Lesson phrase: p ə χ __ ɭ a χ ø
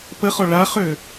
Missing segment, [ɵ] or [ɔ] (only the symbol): ɔ